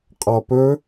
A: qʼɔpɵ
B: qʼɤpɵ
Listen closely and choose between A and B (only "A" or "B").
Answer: A